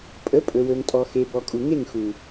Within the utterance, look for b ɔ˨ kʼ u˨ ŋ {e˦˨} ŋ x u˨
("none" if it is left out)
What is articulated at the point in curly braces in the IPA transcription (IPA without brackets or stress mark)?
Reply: e˦˨